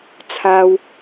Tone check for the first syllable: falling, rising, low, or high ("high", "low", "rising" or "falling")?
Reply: high